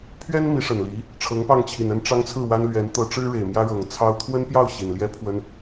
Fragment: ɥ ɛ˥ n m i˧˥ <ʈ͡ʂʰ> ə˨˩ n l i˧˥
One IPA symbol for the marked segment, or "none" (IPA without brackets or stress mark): ʂ